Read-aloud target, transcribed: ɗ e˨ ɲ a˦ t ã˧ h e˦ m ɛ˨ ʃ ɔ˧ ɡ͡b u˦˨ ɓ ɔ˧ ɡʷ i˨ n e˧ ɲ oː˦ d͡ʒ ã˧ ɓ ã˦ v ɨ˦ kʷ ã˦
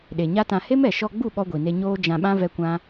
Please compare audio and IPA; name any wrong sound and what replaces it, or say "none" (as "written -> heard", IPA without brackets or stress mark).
ɨ˦ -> ɛ˦